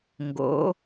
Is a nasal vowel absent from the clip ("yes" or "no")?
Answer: yes